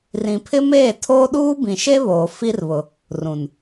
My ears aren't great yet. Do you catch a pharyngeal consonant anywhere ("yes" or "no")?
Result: no